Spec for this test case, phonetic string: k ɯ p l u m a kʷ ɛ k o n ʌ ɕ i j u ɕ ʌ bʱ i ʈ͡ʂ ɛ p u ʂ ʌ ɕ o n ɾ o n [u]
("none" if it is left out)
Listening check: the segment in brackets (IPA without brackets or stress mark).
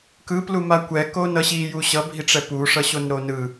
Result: ɯ